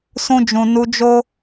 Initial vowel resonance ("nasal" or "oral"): nasal